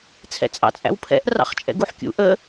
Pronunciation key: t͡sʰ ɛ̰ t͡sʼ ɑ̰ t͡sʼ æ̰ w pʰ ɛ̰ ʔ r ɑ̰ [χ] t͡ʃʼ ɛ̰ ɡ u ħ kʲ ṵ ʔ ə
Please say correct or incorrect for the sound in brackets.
correct